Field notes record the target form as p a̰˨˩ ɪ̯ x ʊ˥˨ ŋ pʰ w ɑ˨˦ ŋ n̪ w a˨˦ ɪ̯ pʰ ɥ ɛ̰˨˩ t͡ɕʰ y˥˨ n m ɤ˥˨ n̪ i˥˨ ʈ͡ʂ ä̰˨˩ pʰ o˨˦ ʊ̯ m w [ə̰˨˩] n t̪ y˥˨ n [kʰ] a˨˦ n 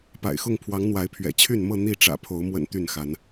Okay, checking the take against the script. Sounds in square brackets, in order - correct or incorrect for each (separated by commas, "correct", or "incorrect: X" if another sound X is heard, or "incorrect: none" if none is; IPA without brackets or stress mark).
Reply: correct, incorrect: x